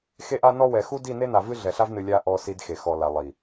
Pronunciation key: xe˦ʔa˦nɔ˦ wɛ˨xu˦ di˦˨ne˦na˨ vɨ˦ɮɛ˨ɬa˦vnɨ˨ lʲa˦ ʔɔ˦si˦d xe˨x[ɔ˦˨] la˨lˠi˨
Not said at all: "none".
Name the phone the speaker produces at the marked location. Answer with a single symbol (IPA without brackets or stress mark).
ɔ˨